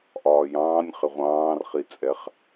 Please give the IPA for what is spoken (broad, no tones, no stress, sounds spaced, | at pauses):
ʔ ɒː j ɑ̃ː nʲ χ ɪ ʁʷ ɑ̃ː r χ i t͡sʼ ɛ χ